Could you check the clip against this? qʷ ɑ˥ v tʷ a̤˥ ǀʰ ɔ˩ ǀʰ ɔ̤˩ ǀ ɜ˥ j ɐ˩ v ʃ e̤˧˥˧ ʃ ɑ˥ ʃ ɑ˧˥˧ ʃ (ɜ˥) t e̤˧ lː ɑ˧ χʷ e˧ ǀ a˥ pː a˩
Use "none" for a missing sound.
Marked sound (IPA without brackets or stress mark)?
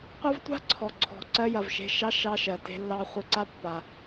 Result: ɜ˩